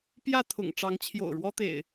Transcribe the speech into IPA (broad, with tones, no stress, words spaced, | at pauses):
pjä˥˨t̪ʰʊ̰˨˩ŋ ʈ͡ʂɑ˨˦ŋt͡ɕʰjo̰˨˩ʊ̯ɻwɔ˦t̪ḛ˨˩ɪ̯